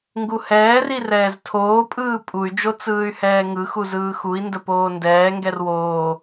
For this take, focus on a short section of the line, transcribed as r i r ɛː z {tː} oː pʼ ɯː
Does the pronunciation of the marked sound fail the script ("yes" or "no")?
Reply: yes